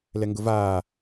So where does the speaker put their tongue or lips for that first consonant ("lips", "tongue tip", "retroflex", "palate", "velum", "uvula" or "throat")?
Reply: tongue tip